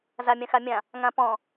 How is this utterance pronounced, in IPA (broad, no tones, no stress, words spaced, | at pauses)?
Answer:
zamʲãxamʲã | ŋãpɔ̃